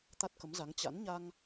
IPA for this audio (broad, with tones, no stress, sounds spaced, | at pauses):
t̪ a˦˥ t̚ k ə˨˦ m z a˨˦ ŋ t͡ɕ a̰˧˥ n ɲ a˧ ŋ